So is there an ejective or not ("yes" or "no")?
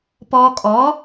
yes